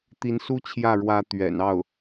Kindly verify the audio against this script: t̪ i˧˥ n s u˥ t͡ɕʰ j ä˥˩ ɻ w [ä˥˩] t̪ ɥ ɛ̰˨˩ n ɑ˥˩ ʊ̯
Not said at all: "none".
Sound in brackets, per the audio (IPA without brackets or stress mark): ä˧˥